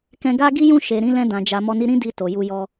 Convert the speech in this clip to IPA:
k ɛ̃˧ ɡ a˦ ɡ i˦ j ũ˦˨ ʃ e˨ ɾ ĩ˨˦ l ɛ̃˧ d ã˨ d͡ʒ a˨ m ɔ˧ n i˦ ɾ ĩ˦ d i˧ t o˨ j u˧ j ɔ˦

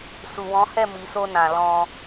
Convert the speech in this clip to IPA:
s u˨ w ɔ̃˨˦ h ɛ˦˨ m i˨ s o˧ n ã˨ l ɔ̃˧

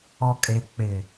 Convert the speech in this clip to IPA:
ɔ˨ kʼ e˨ k͡p ɪ˨

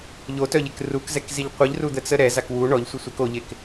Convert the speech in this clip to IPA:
ʎ o t œ ʎ e k r u k z ɛ k z i ʎ qʷ i ʎ r u d̪ ə t͡s ə ɾ ɛ z a k w u ɳ ɔ ʎ sʷ e sʷ a k o ʎ e k

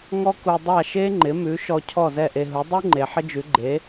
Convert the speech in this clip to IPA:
ŋ ɔ˥ k u˧ dˤ a˥˩ ʃ e˥ ŋ͡ǃ ɪ˩˥ m ʉ˩˥ ʃ ɔ˧ cʰ ɔ˥˩ z ɛ˥˩ ʔ e˧ ɦ u˩˥ dˤ u˥ ŋ͡ǃ e˩ ħ ɪ˥ d͡ʒ ʉ˩˥ ɡ͡ǃ e˩˥

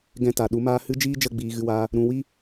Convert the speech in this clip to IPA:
ɡ ɛ̃˧ t a˨ ɗ u˨˦ m aː˦ h ɨ˦ d͡ʒ iː˦ d͡ʒ ə˦˨ ɡ͡b iː˨ ɣ ɨ˧ w aː˧ | ɾ ũ˧ w i˦

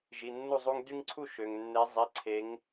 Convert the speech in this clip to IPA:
ʒ i˩˧˩ nː u˥˨ zˤ u˦ ŋ d y˦ ŋ ǀʰ u˥˨ ʃ ø˩ ŋ nː e˨˦ zˤ i˩˧˩ ǀʰ e˨˦ ŋ

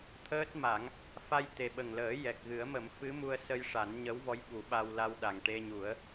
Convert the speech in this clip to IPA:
t̪ʰ əː˦˥ t̚ m a˨˩˦ ŋ | f a˧ j t̪ e˨˩ ɓ ə˨˩ ŋ l əː˨˩˦ j ɛ˨˩ k̚ ɣ ɨ˨˩˦ ə̯ m ə˨˩˦ m f ɨ˧˥ m u˧ ə̯ s ə˧ j ʂ a˨˩˦ n ɲ ə˧˥ w v ɔ˧˥ j ɓ u˨˩˦ ɓ a˧ w l a˧ w ɗ a˨˩ ŋ ʈ e˧ ɲ u˨˩˦ ə̯

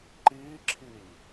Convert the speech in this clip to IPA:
ǃ iː ǁʰ i ʎ

